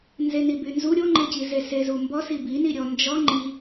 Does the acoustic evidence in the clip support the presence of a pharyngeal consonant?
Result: no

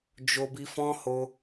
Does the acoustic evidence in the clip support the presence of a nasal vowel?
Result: yes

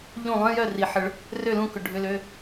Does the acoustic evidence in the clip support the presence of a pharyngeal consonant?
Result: yes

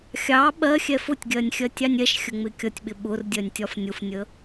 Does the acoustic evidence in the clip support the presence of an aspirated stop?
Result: no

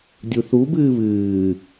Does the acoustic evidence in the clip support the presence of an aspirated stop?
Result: no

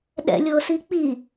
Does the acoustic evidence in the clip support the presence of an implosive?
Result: yes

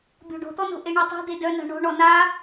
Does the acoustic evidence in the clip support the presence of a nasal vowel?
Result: no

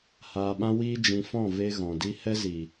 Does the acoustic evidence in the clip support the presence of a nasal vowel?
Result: yes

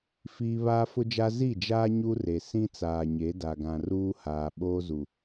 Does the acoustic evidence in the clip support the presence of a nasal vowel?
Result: yes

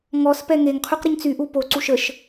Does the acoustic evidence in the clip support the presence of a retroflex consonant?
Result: no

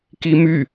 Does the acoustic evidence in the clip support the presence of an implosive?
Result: no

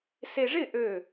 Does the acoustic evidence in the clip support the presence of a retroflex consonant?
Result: yes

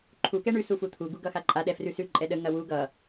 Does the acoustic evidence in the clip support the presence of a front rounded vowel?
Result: no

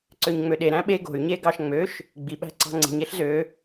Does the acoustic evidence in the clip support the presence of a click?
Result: yes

